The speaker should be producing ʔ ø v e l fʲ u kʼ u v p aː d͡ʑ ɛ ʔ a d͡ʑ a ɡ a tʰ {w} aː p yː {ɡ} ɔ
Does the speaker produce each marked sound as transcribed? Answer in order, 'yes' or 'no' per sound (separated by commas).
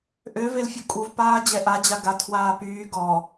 yes, yes